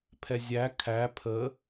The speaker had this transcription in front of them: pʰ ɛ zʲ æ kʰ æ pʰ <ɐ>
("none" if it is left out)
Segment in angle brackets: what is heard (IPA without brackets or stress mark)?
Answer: ə